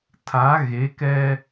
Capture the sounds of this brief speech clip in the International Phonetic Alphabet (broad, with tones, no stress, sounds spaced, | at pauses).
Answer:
tʰ a˨˦ ɣ e˨˦ k ɛ˦